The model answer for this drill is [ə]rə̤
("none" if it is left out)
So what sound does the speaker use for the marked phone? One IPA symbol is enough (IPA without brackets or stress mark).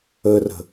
ə